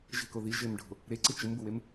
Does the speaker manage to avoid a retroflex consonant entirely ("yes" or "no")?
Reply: no